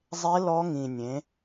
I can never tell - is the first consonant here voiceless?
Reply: no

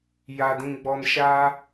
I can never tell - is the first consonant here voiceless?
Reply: no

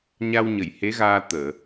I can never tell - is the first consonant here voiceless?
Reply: no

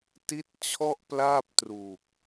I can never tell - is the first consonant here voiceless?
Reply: yes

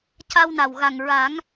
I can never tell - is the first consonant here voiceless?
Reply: yes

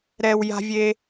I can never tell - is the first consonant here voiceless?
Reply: no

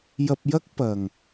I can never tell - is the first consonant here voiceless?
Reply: no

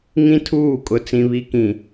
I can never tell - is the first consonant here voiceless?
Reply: no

